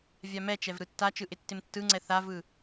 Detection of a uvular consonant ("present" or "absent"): absent